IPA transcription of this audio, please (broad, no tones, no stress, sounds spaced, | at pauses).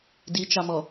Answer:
d i t͡ʃ ɑ m ɔ